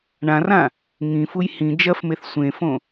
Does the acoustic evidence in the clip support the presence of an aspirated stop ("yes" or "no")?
no